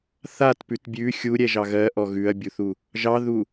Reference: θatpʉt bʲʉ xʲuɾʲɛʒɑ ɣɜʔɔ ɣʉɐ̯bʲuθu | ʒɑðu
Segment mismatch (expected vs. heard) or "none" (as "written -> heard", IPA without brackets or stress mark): none